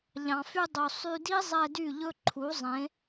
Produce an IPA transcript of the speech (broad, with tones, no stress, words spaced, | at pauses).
ʎɑ̃˨fy˧dˤu˨ sˤy˧di˦zˤɛ˧ dy˦˨ʎɵ˦ǃʰu˨˦zˤẽ˨˦